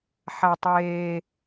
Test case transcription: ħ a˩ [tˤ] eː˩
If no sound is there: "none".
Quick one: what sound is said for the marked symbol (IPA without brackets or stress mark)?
tˤ